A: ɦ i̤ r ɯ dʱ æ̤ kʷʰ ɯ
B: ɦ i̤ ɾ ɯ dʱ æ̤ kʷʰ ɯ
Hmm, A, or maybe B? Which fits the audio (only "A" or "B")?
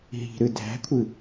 B